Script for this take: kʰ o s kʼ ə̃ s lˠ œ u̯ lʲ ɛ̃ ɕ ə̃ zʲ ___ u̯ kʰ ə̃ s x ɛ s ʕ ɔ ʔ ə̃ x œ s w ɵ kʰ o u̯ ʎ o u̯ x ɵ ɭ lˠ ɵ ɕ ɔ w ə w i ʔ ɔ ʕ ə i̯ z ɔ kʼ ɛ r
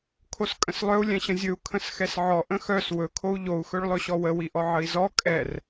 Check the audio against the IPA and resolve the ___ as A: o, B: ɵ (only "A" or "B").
B